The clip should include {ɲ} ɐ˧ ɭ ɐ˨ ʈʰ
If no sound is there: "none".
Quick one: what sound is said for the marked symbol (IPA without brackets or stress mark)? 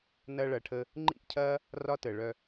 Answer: n